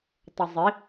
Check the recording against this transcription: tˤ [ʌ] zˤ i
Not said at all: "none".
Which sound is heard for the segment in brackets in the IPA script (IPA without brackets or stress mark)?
ʌ